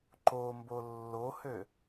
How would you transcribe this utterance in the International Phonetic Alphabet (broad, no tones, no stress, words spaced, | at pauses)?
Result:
ǃombo lːohø